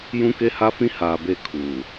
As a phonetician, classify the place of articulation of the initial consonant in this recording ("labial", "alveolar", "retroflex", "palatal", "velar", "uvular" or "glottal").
palatal